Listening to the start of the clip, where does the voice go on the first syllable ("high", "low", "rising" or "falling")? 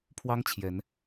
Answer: high